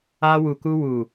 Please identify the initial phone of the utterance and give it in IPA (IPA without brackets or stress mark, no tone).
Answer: a